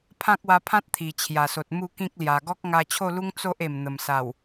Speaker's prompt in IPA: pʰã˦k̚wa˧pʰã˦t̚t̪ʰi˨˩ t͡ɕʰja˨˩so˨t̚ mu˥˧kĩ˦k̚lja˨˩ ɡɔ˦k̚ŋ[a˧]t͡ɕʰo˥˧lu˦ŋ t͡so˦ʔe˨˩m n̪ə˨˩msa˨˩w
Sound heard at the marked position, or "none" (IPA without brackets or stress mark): a˧